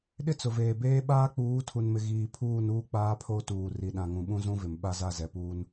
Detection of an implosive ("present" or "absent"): present